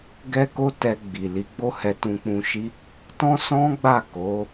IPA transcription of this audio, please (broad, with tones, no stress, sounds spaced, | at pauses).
ɡ ɛ˦ k o˦ t ɛ˧ ɡ͡b i˨ l i˨˦ ɡ͡b o˦ h ɛ˧ t ũ˧ k͡p ũ˧ ʃ i˦ | t ɔ̃˦ s ɔ̃˦ ɡ͡b a˦˨ k o˨˦